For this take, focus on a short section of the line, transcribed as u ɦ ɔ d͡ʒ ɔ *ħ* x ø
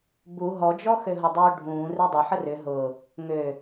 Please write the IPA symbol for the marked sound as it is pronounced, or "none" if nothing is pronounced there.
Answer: none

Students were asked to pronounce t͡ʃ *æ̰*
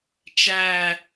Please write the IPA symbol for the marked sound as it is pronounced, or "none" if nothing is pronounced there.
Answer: æ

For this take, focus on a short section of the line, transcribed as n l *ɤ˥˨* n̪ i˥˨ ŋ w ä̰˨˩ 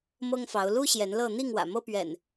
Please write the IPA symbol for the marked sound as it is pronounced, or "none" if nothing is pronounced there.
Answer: ɤ˥˨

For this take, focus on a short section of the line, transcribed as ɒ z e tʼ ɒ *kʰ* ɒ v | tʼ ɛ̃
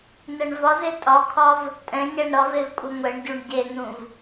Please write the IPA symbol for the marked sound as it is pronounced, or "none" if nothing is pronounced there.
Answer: kʰ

